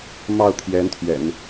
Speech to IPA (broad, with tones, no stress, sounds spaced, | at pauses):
m ɑ˥˩ ʊ̯ t̪ʰ j ɛ˧˥ n t̪ʰ ɥ ɛ̰˨˩˦ n